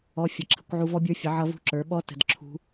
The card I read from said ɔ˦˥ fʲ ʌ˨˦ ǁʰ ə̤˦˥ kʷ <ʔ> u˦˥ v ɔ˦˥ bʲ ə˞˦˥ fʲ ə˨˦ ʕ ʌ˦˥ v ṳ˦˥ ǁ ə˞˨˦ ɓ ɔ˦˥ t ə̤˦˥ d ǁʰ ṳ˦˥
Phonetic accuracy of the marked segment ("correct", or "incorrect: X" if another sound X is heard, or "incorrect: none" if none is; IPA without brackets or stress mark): incorrect: ʕ